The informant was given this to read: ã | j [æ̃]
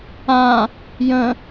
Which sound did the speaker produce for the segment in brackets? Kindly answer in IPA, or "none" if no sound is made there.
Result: ə̃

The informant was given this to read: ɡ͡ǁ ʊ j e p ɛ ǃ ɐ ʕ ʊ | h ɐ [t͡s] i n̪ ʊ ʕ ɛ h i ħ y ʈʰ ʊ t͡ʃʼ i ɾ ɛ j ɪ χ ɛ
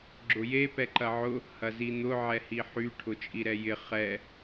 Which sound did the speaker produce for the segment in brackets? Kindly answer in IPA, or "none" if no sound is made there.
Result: z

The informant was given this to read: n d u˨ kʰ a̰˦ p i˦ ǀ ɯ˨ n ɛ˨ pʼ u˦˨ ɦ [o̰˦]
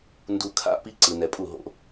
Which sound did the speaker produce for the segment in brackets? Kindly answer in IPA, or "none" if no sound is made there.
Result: o̰˦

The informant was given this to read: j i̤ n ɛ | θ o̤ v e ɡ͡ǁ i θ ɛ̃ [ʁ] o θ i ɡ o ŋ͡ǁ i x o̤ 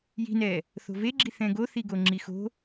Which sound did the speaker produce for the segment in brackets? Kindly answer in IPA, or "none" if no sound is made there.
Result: ɡ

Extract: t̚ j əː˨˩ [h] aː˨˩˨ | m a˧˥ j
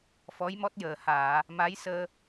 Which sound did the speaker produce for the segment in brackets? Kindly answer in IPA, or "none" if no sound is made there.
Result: h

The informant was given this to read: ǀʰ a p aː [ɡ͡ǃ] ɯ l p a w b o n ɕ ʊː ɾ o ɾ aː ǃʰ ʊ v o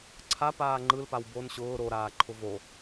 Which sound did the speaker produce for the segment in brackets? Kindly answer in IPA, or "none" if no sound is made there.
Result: ŋ͡ǃ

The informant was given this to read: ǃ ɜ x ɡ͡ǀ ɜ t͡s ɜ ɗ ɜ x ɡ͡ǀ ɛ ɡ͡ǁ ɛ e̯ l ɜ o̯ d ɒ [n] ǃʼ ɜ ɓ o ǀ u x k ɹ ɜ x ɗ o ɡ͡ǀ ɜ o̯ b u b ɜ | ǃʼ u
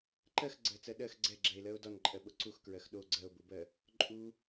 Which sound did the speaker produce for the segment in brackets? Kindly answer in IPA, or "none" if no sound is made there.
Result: n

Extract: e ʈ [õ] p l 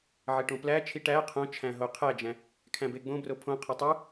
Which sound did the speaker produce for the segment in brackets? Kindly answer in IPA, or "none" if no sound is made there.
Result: õ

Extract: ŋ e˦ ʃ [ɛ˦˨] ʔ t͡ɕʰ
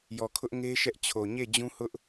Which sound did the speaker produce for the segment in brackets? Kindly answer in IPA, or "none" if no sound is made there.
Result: ɛ˦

